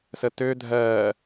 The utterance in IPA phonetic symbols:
s ə t ø dʱ ɜː

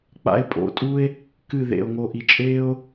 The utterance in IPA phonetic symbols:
k͡p a̰˧ e̯ pʼ o̰˧ tʼ u˦ e̯ | k ɨ˦˨ ð ḛ˨ o̯ ŋ o˨ ʔ i˨ t͡ʃʼ eː˦ o̯

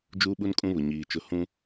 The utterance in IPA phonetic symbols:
d͡ʒ uː˦ ɓ u˦ n kʼ ũ˦ β ʊ˨ ɲ iː˨ t͡ʃ ʊ˦˨ h ũ˦

